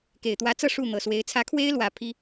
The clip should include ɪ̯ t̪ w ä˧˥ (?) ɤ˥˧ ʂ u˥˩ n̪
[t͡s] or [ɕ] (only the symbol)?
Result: t͡s